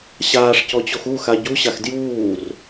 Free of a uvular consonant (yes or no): yes